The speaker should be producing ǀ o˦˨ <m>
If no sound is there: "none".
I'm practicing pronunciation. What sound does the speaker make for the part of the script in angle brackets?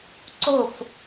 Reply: f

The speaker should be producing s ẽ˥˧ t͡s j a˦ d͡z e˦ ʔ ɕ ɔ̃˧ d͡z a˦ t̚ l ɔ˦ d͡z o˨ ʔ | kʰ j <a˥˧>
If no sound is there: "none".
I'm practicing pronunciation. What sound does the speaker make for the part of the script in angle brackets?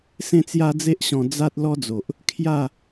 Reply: a˥˧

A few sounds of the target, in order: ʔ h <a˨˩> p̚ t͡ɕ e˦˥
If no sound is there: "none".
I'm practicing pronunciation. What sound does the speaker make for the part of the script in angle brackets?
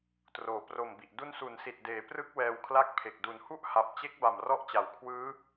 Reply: a˨˩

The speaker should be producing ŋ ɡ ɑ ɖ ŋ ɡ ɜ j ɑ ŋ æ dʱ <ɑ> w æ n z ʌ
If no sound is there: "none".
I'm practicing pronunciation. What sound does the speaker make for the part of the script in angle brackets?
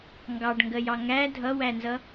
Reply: ʌ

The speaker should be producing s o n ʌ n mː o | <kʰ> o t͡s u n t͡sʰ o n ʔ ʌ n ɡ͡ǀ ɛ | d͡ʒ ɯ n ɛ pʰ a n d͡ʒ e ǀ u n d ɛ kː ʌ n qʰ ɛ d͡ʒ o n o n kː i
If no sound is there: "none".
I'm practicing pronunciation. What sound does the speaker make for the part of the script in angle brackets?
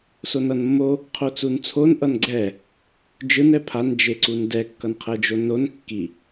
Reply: qʰ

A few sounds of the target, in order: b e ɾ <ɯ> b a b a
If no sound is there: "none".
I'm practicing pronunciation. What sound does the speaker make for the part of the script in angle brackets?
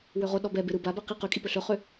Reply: ɯ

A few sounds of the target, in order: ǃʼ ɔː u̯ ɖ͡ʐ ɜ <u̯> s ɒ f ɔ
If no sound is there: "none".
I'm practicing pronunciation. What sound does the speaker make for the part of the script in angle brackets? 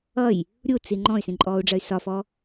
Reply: y̯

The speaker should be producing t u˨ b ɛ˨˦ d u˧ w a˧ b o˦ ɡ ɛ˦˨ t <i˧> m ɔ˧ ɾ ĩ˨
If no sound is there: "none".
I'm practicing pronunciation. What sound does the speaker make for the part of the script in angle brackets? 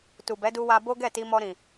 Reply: i˧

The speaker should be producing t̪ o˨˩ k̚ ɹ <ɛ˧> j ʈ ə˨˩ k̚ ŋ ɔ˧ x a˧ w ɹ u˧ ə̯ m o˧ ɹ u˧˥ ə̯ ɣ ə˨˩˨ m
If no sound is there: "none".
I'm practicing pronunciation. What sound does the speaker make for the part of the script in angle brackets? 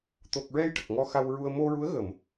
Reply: ɛ˧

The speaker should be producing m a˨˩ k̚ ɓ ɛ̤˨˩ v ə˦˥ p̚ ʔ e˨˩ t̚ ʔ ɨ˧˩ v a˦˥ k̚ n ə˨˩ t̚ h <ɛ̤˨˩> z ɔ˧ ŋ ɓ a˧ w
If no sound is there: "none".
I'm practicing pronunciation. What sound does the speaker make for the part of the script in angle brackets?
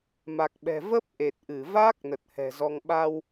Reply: ɛ̤˨˩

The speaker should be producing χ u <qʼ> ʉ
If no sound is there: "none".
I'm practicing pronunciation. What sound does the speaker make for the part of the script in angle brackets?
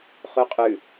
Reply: qʼ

